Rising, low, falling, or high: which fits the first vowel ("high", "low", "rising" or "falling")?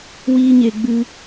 high